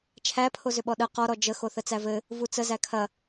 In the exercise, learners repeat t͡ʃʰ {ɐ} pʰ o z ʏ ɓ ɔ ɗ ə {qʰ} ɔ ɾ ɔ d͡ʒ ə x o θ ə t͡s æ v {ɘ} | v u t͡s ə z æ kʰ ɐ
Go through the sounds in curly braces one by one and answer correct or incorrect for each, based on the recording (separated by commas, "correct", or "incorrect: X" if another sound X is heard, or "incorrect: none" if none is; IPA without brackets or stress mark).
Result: incorrect: æ, incorrect: q, correct